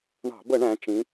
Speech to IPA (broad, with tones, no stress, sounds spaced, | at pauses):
ɳ ɑ̤˧˩˧ b ə˧˩˧ ɳ æ̃˩˧ t͡ʃ ĩ˩˧